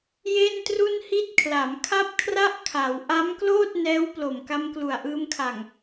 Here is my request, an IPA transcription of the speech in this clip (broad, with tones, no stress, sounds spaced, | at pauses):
j e˥˩ n t r u˥˩ n h i˥˩ t̚ kʰ l a˩˦ m kʰ a˥˩ p̚ kʰ r a˥˩ ʔ kʰ a˩˦ w ʔ a˦˥ m k l oː˥˩ t̚ n ɛː˦˥ w p l o˨˩ m k a˧ m k l u˨˩ a̯ ʔ ɯː˧ m kʰ a˨˩ ŋ